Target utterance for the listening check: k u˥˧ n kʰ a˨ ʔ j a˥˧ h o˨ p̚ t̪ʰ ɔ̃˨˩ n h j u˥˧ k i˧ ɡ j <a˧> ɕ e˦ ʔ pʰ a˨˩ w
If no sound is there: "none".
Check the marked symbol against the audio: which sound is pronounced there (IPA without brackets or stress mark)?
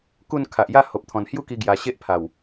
a˧